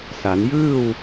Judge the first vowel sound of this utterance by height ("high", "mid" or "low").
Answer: low